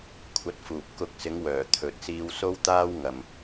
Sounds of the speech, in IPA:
kʷʰɐ˧t̚fuː˨p̚ kʊ˨˥k̚sɪ˨˧ŋwœː˨˩ t̪ʰɵ˨t̚siː˧wso˥wt̪aː˥w ŋɐ˨m

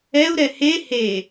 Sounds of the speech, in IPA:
ɛu̯ɾɛ he he

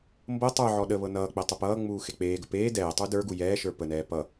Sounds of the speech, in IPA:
mbɤ tˤə˞ʕɔ ɗəβɤ nʌːk͡pɛ tˤupʌːŋ͡muː xek͡peːɡə peː dɛːtˤu də˞ɡu jɛːʃə˞ pənɛː pʌ

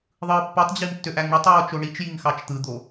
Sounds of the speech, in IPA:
ðˤɯːpːutˤd͡ʑim tːøʔæŋɳɯtˤɹoːt͡ʃ oɳit͡ʃjiŋ xɑt͡ʃt̪ɯd̪o

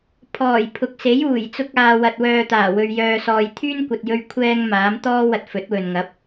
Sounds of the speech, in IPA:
pʰɔː˨˩jpʰʊ˨k̚se˨˥j uː˨˩j t͡sʊ˧k̚aː˨wɐ˨t̚ wœː˨t̪aː˨˩wɵ˨ɥ jœː˧sɔː˧j t̪ʰyː˥nkʷɐ˨t̚jɵ˧ɥ kʷʰɛː˧ŋ maː˨˥m t̪ɔː˥ wɐ˧t̚fɵ˨˥t̚wɵ˨n ŋɐ˨˥p̚

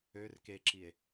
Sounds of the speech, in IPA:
ør keǁie̯

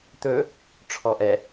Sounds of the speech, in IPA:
t̪ɵ | ʈ͡ʂʰɔʔɛ

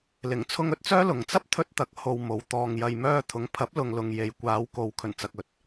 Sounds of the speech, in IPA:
lɪ˨˩ŋt͡sʰʊ˧ŋɵ˨t̚t͡sœː˥ lʊ˨ŋ t͡sɐ˥p̚t̪ʰɵ˧t̚ t̪ɐ˨k̚ ho˧wmo˨˧w t̪ɔː˨ŋ jɐ˨jmœː˧t̪ʰʊ˨˥ŋpʰɐ˨˥p̚ lʊ˨ŋlʊ˨ŋ je˨j kʷaː˨˧wko˨˧w kʰɵ˨˩nt͡sɐ˨k̚ ɵ˨˥t̚

